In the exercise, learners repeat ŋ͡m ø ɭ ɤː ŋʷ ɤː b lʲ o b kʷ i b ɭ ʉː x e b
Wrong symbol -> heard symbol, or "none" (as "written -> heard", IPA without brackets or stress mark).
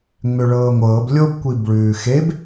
none